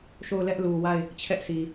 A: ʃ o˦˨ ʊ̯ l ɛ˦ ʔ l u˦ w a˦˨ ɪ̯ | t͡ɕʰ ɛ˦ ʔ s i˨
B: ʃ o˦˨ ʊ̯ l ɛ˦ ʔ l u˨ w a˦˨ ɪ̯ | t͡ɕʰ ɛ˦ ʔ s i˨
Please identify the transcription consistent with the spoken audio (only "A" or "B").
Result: B